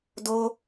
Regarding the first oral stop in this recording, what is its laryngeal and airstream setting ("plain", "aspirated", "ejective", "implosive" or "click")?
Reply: plain